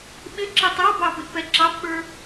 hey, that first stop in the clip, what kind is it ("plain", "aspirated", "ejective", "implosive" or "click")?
implosive